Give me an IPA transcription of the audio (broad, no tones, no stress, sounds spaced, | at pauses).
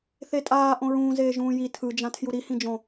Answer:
θ e tʼ aː ʔ õ ɹ ũː z eː ʒ ũː j i tʰ ɯ d͡ʒ ã tʰ j u ɾ i h ĩ d͡ʒ õ